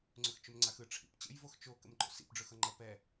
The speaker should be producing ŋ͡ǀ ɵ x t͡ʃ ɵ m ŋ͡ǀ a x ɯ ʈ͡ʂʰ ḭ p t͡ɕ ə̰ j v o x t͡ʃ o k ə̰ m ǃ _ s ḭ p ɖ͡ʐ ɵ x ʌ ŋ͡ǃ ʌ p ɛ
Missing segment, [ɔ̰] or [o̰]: o̰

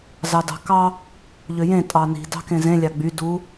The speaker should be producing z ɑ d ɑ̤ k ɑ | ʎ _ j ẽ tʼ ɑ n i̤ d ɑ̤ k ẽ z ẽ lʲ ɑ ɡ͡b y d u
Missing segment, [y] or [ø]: ø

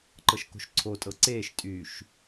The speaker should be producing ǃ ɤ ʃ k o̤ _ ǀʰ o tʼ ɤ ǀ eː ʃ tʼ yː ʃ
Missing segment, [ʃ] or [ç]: ʃ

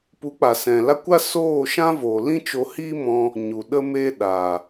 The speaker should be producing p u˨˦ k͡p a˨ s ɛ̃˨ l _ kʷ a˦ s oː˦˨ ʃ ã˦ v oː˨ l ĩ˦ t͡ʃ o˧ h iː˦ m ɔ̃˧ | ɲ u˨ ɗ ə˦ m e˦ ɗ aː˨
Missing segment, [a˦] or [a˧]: a˦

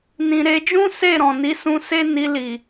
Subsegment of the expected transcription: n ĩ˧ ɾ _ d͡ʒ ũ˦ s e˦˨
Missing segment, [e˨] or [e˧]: e˧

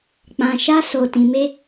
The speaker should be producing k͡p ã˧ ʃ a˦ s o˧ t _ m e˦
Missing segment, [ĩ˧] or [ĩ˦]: ĩ˧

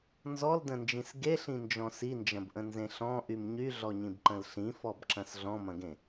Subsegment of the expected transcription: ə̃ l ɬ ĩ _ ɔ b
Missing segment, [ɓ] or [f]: f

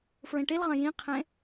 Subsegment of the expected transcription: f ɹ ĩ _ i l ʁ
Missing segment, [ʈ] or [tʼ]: ʈ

